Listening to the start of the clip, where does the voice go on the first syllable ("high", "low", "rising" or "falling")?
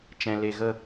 low